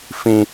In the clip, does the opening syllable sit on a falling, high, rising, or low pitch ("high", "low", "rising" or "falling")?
low